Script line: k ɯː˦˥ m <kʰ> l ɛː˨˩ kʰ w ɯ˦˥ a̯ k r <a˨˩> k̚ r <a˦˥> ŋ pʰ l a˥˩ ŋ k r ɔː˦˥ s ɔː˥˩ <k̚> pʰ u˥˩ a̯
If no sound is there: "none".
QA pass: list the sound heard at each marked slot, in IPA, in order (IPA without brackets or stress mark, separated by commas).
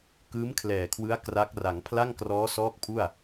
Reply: kʰ, a˦˥, a˩˦, k̚